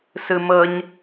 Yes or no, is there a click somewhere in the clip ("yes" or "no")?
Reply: no